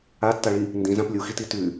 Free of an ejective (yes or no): yes